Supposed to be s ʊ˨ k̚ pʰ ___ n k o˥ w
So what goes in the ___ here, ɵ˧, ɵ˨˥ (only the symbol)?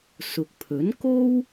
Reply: ɵ˨˥